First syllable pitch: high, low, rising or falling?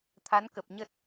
rising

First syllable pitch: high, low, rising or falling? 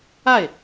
falling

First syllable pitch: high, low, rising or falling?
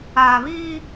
low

